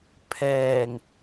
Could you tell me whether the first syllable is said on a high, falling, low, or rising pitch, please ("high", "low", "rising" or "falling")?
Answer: low